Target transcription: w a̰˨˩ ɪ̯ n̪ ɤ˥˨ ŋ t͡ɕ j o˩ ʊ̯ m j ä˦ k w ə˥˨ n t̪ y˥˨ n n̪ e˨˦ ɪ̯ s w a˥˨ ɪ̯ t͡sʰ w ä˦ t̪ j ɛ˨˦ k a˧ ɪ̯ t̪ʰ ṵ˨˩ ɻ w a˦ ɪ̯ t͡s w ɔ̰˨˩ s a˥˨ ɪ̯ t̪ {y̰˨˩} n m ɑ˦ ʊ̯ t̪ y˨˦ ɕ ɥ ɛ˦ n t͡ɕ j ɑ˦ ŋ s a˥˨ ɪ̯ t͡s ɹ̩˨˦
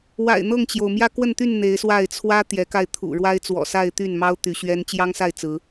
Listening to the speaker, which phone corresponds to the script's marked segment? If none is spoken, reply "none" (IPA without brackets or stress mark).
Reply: y˥˨